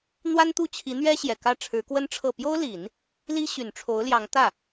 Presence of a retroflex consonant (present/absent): present